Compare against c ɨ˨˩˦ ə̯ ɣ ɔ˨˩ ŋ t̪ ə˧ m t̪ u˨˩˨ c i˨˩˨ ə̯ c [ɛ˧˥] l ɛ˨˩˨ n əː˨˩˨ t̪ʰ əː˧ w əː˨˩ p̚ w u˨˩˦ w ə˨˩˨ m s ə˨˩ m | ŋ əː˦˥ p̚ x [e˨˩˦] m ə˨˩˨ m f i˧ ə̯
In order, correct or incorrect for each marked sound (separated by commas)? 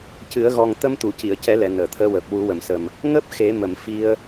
incorrect, correct